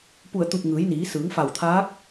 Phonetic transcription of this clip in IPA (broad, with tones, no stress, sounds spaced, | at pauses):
p u˧˩ ə̯ t̪ u˧˩ p̚ ŋ ɯː˩˧ j n iː˩˧ s ɯː˩˧ ŋ f a˧˩ w t̪ʰ aː˧˥ k̚